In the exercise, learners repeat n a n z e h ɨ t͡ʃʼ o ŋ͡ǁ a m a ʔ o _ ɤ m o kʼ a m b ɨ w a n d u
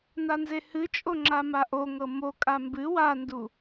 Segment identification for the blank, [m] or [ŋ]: ŋ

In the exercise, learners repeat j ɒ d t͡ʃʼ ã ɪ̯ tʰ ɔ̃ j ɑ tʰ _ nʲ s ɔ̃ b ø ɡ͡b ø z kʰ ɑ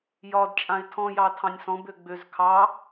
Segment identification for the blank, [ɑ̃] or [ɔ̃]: ɑ̃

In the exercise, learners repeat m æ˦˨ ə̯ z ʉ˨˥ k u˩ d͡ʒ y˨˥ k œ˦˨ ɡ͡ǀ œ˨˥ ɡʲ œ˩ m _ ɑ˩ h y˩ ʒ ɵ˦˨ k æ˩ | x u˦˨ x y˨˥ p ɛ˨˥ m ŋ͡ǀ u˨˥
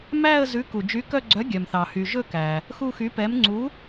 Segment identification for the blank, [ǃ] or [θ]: θ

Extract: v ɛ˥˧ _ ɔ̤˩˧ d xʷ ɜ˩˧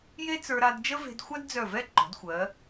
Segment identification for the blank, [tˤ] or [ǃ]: ǃ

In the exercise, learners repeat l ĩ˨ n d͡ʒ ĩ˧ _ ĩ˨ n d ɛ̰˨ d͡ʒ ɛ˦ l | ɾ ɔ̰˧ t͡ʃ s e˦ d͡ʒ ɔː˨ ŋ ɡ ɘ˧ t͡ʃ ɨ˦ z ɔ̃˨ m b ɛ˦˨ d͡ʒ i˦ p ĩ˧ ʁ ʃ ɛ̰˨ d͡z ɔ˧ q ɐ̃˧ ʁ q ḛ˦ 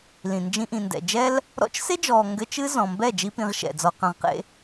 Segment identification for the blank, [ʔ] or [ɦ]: ʔ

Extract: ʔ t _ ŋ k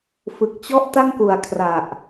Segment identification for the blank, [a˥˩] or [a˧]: a˥˩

